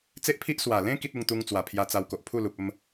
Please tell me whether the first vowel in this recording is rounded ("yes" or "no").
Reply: no